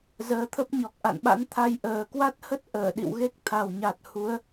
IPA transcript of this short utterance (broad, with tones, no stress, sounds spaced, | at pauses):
z əː˨˦ t̪ʰ ə˦˥ p̚ ɲ ɔ˨˩ k̚ ʔ a̰˧˨ n ɓ a̰˧˥ n t̪ʰ a˧ j ʔ əː˨˩ k w a˦˥ t̚ h ə˦˥ t̚ ʔ əː˧˩ ɗ ḭ˧˨ w ɣ e˦˥ k̚ t̪ʰ a˨˩ w ɲ a˨˩ t̚ h u˨˦ ə̯